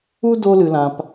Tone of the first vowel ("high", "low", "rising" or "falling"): high